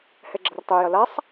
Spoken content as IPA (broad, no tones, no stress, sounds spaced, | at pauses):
h ɛ ɡ͡ǁ ɐ r tˤ ø j ɐ l a sˤ